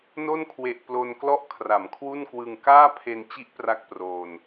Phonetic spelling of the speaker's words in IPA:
n o˥˩ n kʰ w e˨˩ ʔ p l o˧ n k l ɔ˥˩ ʔ kʰ r a˩˦ m kʰ w u˥˩ n k w ɯ˧ ŋ k aː˥˩ pʰ e˧ n t͡ɕ i˦˥ ʔ p r a˥˩ k̚ p r oː˧ n

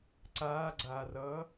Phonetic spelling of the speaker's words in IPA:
ǀ aː ɡ͡ǀ aː r ʌː

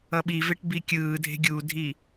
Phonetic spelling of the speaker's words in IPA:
ʌ ɓ i v e ʈ b i kʲ ɯː dʱ e̤ ɡʲ u dʱ i

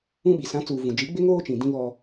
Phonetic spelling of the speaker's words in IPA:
ũ˦ ɓ i˨ s ã˨˦ t͡s uː˨ v ũ˨ d͡ʒ i˨˦ ɡ͡b ɪ˦ ŋ oː˦ t͡ʃ ĩ˨ d ĩ˦ β ɔ˦

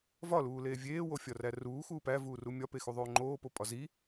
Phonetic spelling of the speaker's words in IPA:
v ɒ l uː l eː vʲ eː w o fʲ ɒ r æ r uː x uː p æ v uː r u mʲ ɒ p e x u ðˤ oː ŋ͡ǃ oː p o pʼ ɒ z i

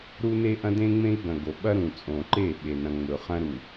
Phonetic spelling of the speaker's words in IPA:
ɾ u˦ n e˦ ʔ ɐ̃˦ d ẽ˦ ŋ͡m ẽ˦ i̯ ɡ ɐ̃˨ ɡ o˨ ɓ ɐ˦ ɾ ũ˨ t͡sʼ õ˨ ǃ e˦˨ ɓ e˨ n ɐ̃˨ ŋ͡m ɵ˨ χ ɐ̃˦ ɾ u˨

